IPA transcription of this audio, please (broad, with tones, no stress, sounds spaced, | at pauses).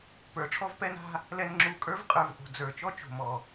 p ə˞˨ ʈ͡ʂʰ ɔ˦ v p ɛ˦ n a̤˦ | l ɛ˧ n ŋ͡ǁ u˧ kʼ ə˞˦ v qʼ ə˞˨ v ʔ o̤˨ d͡z ə˞˨ t͡ʃ ɔ˦ t͡ʃ o̤˨ m ɔ˨